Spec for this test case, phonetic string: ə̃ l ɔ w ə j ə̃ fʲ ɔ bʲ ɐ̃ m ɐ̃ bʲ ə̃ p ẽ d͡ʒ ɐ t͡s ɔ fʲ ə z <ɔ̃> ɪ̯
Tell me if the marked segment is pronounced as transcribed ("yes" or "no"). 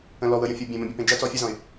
yes